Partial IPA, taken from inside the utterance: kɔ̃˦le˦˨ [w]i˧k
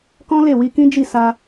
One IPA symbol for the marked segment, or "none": w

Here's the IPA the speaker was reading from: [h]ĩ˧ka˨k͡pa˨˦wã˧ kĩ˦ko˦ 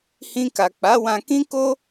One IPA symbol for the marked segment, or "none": h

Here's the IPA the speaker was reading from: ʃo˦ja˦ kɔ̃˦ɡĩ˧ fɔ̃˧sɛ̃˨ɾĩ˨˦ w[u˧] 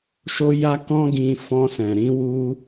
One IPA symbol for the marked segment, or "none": u˧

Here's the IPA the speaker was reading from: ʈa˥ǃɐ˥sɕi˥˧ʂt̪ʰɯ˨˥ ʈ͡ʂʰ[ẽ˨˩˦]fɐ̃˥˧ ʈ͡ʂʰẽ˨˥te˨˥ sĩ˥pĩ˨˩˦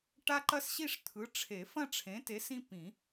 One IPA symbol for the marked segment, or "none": e˨˩˦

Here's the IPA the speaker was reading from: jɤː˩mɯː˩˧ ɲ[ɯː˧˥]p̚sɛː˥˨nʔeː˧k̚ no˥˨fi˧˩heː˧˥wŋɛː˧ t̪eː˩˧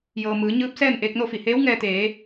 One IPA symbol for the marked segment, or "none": ɯː˧˥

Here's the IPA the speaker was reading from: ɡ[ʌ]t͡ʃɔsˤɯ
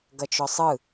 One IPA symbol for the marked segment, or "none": ʌ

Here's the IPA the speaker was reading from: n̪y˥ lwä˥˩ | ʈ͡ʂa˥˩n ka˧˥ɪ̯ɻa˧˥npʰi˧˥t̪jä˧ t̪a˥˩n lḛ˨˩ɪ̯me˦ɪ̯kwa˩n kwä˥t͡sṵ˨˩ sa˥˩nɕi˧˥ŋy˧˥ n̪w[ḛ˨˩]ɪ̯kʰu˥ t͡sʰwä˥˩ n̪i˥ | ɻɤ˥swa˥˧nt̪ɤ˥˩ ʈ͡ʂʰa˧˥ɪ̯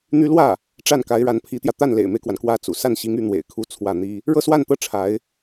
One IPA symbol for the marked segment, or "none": ḛ˨˩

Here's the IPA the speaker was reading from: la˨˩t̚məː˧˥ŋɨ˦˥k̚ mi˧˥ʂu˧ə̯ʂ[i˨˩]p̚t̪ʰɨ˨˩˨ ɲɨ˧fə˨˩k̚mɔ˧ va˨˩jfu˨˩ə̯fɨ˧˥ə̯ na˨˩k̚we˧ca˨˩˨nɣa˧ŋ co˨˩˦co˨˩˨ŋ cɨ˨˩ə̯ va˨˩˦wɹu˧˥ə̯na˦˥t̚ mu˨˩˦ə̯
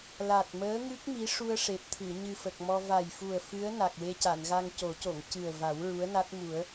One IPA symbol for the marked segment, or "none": e˨˩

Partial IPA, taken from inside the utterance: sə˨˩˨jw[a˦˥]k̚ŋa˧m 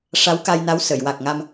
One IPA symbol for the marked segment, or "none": a˨˩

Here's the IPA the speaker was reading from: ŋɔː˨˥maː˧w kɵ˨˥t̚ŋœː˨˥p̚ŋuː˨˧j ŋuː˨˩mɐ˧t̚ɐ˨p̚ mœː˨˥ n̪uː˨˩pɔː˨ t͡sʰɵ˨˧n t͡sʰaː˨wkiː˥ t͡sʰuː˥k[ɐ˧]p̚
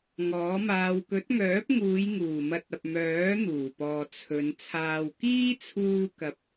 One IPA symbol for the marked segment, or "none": ɐ˧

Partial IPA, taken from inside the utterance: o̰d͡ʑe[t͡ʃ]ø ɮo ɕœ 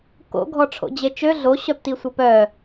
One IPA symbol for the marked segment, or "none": t͡ʃ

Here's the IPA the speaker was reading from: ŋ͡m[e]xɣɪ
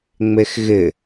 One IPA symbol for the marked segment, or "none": e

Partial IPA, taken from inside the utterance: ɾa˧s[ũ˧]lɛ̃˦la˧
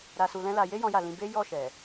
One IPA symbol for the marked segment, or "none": u˧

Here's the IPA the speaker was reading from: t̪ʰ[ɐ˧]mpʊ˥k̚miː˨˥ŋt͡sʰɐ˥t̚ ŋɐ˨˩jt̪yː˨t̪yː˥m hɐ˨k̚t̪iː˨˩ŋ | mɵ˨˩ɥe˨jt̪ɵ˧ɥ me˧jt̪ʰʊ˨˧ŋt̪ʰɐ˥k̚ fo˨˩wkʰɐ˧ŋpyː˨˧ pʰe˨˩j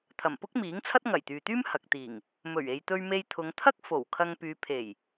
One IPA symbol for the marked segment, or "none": ɐ˨˩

